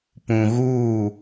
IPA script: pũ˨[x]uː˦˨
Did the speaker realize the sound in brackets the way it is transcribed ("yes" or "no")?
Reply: no